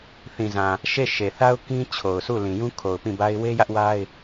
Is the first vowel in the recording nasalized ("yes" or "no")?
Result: yes